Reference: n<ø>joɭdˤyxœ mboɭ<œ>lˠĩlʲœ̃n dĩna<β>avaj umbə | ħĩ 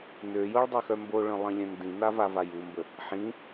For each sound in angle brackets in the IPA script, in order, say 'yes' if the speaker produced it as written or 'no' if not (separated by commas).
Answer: yes, no, no